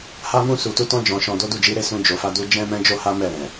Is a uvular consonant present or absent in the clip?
absent